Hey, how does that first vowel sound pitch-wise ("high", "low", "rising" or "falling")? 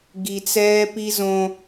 low